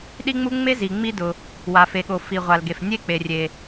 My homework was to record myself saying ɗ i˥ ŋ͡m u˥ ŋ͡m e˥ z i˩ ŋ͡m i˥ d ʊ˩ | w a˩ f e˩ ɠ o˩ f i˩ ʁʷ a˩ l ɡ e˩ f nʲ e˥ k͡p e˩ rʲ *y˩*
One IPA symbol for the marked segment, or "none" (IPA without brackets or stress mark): e˩